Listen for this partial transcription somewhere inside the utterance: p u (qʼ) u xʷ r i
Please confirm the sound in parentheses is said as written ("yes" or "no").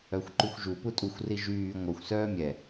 no